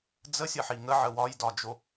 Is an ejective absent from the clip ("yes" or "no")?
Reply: yes